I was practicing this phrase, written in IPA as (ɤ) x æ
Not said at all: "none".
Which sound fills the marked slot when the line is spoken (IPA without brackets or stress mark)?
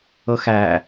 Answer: ɤ